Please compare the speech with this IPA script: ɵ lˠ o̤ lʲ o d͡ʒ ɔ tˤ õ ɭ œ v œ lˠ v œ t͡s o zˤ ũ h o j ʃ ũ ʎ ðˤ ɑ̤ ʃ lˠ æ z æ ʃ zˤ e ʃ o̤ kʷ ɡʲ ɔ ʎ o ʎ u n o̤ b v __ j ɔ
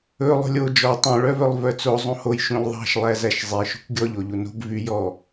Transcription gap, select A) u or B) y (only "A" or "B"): B